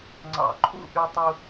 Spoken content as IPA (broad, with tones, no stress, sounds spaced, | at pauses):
ŋ͡ǀ ɑ̰˧˩ ǃʰ ṵ˥˧ ʔ y˧ tˤ u˧